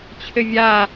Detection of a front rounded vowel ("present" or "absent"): absent